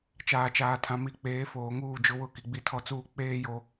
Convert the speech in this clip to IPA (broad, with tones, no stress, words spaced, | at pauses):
t͡ʃaː˨t͡ʃaː˨tʰã˨ mi˨ k͡peː˨˦foː˨ŋuː˦˨ d͡ʒʊ˦wʊ˦˨ ki˨ɡ͡bi˦tʰɔ˦t͡suː˦ k͡peː˦ jo˦